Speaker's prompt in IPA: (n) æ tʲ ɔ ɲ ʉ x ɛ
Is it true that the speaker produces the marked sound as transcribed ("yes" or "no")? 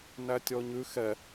yes